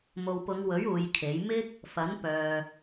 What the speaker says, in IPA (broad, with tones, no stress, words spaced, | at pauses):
mo˨wpʊ˨˧ŋwɵ˨˥ɥ uː˨˧jkʰe˨˥j mɪ˥k̚ | fɐ˨˥npœː˨